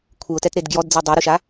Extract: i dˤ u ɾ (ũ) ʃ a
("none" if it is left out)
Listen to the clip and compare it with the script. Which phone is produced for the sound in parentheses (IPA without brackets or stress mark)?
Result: u